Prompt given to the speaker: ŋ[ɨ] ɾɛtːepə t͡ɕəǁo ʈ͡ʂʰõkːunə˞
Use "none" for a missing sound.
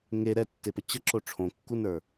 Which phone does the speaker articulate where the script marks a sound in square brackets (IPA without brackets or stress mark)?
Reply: e